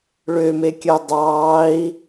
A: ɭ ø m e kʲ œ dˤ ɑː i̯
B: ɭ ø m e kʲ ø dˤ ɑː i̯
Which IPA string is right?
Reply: A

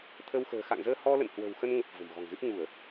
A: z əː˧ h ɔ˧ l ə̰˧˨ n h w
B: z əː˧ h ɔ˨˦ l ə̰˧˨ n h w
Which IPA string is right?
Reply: A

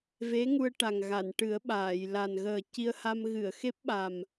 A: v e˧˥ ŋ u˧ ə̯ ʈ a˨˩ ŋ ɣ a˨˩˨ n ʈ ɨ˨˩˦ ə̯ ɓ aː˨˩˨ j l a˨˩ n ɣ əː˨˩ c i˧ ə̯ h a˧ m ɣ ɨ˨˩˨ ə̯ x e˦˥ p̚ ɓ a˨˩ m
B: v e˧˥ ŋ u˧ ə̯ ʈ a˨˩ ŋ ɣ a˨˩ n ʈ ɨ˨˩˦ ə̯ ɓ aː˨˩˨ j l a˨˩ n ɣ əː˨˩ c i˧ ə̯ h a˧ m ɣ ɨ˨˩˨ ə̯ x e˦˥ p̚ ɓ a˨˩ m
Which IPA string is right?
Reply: A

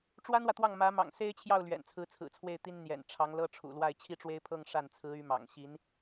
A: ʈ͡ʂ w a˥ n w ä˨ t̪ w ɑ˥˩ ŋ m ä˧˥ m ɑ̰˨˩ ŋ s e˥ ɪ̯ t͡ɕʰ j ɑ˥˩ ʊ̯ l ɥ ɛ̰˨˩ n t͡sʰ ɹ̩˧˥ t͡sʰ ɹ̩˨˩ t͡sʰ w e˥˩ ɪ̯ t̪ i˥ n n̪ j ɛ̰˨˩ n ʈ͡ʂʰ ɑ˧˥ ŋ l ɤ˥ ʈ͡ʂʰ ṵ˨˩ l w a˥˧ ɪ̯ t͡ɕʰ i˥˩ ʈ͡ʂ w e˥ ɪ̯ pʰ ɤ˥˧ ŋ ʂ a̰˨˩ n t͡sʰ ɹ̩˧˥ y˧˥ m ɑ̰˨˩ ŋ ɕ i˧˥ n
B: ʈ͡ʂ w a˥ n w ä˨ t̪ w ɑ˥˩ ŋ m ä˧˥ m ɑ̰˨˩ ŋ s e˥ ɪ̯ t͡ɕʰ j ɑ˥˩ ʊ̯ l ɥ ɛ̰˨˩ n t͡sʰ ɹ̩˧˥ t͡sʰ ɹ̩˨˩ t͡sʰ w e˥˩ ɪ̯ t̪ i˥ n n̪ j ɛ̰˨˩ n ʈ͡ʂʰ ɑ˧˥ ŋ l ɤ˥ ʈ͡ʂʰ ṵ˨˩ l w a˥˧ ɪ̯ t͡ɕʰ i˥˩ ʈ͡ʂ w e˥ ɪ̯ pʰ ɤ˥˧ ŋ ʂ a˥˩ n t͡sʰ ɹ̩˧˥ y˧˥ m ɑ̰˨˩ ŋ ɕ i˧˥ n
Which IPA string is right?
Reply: B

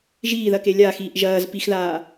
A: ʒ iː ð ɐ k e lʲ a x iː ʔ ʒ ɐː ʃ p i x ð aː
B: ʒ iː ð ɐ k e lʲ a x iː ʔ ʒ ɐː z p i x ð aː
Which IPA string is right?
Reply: B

